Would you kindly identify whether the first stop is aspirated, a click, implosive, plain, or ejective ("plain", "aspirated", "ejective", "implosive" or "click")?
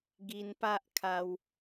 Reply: plain